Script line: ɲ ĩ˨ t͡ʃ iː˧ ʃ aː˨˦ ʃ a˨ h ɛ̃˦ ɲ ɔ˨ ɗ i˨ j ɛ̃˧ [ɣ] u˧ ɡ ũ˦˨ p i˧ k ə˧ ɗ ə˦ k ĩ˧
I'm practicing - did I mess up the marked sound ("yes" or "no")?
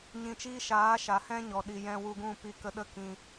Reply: yes